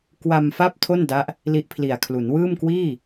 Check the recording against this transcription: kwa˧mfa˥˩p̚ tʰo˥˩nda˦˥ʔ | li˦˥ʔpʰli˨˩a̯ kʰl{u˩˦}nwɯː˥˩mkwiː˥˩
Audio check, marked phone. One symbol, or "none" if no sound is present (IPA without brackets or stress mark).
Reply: u˩˦